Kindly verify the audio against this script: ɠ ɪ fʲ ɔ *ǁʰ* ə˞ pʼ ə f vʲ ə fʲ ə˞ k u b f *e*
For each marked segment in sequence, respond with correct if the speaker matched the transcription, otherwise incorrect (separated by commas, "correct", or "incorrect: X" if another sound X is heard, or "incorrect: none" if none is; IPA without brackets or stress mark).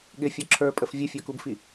correct, incorrect: i